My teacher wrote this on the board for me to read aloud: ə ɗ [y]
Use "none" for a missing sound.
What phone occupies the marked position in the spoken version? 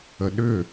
ʏ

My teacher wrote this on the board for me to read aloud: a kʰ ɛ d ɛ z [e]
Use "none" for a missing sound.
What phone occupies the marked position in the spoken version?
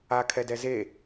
e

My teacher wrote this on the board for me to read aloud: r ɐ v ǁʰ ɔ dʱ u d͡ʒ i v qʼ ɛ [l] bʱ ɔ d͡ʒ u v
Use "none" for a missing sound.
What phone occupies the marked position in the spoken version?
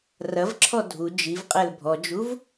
l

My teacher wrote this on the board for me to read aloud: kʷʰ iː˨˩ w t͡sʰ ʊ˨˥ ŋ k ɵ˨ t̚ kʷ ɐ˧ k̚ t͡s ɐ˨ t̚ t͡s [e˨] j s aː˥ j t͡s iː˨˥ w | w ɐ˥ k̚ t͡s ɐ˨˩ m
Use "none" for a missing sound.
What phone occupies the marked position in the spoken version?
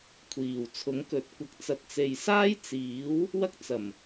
e˨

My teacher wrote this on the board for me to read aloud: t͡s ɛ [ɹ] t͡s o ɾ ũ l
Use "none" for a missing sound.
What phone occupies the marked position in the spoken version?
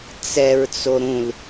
ɹ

